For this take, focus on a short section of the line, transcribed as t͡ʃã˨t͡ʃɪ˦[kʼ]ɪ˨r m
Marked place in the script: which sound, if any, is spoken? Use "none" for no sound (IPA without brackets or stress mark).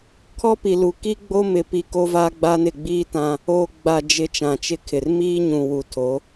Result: kʰ